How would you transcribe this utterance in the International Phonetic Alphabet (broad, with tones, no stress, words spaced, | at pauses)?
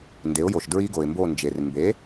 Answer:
nde˩˥ʊ̯jo˩ʃdɹi˦˥ ɡo˩ɪ̯mbo˦˨nd͡ʒe˩r mbe˩˥